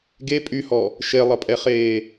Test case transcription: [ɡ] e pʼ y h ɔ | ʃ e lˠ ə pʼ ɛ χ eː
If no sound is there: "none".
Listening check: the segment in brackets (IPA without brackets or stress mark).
ɡ